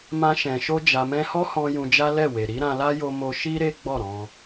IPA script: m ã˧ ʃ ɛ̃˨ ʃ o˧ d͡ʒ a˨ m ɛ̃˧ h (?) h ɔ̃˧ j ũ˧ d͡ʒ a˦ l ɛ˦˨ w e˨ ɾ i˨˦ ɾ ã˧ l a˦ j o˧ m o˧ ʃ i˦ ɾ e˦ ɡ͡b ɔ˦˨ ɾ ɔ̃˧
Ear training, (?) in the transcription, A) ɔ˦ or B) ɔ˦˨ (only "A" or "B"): A